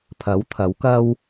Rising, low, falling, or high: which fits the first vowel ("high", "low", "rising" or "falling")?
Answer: rising